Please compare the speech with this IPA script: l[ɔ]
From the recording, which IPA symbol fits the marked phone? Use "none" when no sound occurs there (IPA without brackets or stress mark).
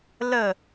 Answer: ə